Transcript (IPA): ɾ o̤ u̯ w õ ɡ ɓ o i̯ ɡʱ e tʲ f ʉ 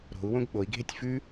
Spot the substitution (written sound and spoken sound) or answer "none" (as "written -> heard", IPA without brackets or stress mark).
none